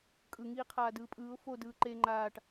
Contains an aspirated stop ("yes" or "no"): yes